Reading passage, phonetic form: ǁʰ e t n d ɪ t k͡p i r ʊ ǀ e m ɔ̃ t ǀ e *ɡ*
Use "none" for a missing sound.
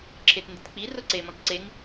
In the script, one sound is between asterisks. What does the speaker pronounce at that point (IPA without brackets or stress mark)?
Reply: ŋ